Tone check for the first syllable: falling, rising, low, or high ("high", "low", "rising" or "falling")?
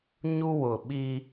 high